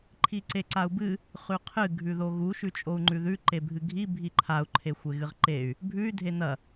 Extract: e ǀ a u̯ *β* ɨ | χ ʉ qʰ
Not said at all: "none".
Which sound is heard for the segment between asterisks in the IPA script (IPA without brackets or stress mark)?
b